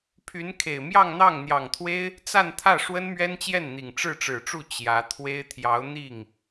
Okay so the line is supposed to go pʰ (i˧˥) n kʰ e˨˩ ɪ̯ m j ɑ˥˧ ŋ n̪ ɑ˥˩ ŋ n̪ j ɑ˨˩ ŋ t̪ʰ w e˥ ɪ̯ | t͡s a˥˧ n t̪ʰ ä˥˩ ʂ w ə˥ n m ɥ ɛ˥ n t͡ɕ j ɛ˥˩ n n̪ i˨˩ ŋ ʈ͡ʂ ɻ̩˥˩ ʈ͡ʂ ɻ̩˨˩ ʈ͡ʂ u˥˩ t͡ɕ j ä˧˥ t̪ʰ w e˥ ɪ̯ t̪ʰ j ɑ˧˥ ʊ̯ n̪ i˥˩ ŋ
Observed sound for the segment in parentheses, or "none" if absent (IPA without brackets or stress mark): y˧˥